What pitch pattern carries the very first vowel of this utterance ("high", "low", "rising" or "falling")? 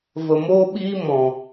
low